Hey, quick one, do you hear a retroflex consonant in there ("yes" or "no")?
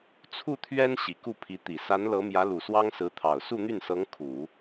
no